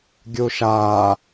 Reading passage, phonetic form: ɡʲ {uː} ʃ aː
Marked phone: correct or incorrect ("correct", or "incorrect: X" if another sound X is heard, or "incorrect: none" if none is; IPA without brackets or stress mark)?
incorrect: u